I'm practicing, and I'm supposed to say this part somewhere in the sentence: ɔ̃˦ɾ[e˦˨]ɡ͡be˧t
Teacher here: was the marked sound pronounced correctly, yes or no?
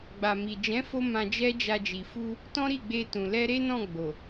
no